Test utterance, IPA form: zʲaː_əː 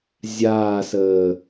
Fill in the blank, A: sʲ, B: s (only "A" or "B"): B